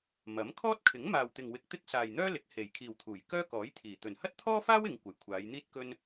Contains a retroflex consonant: no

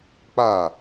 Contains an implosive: no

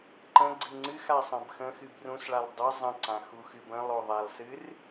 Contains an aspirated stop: no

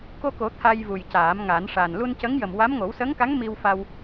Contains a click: no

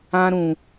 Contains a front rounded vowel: no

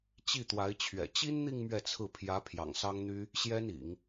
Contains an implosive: no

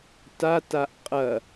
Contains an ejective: yes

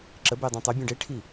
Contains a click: yes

